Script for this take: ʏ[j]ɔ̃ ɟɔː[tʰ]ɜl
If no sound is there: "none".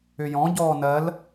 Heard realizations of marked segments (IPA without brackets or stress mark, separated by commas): j, n